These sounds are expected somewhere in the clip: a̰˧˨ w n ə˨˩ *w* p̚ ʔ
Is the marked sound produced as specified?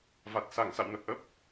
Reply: no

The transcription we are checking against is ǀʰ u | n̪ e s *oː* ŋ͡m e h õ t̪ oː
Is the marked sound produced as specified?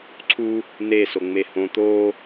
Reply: no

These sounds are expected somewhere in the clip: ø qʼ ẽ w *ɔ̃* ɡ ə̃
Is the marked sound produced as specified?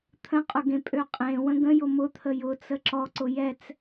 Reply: no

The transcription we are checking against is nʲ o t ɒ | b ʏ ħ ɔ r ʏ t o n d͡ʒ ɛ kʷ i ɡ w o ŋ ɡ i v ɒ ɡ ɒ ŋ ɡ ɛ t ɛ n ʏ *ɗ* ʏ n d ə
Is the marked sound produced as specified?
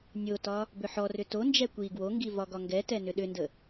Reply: yes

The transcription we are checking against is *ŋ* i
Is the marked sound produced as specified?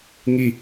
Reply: yes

